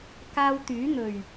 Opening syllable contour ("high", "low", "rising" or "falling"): high